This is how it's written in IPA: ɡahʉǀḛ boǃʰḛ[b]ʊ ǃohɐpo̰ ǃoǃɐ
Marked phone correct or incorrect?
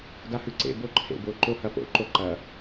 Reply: correct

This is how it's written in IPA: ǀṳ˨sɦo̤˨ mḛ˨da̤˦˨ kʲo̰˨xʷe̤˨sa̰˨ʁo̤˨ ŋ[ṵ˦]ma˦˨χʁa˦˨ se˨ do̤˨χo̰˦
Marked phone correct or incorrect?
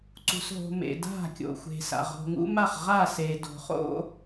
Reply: correct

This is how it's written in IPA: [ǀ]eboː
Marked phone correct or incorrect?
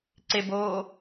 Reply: correct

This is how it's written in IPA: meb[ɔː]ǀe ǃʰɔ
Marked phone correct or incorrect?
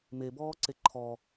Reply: correct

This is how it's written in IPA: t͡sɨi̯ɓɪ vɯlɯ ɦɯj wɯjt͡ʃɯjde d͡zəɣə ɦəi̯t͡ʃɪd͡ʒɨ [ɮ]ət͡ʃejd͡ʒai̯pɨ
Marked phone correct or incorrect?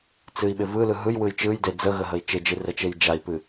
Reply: incorrect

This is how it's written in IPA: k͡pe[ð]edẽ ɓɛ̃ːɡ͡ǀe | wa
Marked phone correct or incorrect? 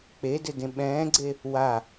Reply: incorrect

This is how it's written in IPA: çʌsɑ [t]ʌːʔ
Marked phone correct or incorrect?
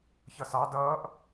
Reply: incorrect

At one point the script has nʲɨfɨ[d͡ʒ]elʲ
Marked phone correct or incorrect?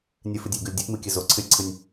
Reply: incorrect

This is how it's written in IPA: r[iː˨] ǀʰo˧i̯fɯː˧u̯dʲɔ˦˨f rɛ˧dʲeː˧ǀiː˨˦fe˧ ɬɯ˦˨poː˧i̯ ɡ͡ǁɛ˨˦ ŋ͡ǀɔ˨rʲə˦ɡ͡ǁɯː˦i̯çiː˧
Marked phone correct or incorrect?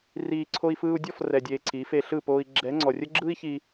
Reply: correct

